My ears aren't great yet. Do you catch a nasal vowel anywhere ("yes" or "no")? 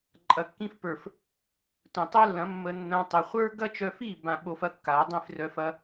yes